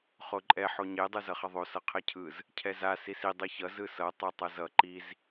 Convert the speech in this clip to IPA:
χ o ǃʼ ɛ ħ o ɲ e dˤ ɯ z ʌ χ ʌ ðˤ o s ʌ qʰ e cʰ ɯ z | cʰ ɛ z a s i s i dˤ ɯ ç ʌ z ɯ s ʌ tˤ e tˤ ʌ z ʌ ǃ i z

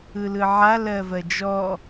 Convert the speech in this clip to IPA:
ɯ l ɯ ʕ a l ɜ v ɜ d͡ʒ ɔ

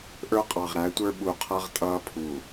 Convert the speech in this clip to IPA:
ʔ ə˞˦ qʼ ɑ˨ ʁ ɾ æ˨˦ tʷ ə˞˦ ɓ u˨ qʰ ʌ˦ ʁ tʼ ʌː˦ pʰ u˨

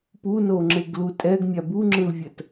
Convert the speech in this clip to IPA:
p u n o ŋ͡ǁ e ɡ l u tʼ ɛ ɡ mʲ a b u ŋ͡ǁ ɯ l vʲ ɜ t

